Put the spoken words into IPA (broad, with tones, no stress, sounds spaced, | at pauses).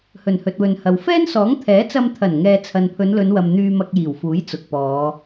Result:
h ɵ˨˩ n h ɵ˨ t̚ w ɵ˨ n h ɐ˨ w f ɛː˥ n s ɔː˨˥ ŋ t̪ʰ ɛː˨˥ t͡s ɐ˧ m t̪ʰ ɐ˨˩ n ŋ ɛː˨ t͡sʰ ɐ˨ n pʰ ɵ˨˧ n l ɵ˨˧ n w ɐ˨ m n̪ yː˨ m ɐ˨ k̚ j iː˨˩ w f uː˨˥ j t͡s ʊ˨ k̚ p ɔː˨˧